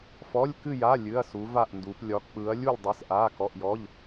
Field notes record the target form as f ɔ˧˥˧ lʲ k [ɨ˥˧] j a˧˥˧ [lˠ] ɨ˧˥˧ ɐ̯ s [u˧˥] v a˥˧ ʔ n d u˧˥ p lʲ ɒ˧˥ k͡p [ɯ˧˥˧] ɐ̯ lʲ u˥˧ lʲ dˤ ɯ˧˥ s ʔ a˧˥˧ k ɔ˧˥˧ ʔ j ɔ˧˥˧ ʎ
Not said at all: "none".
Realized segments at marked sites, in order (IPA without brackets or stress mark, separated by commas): ɨ˥˧, lʲ, u˧˥, ɯ˧˥